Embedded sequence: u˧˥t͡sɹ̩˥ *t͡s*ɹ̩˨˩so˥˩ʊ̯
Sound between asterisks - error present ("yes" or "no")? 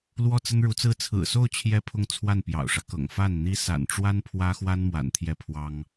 yes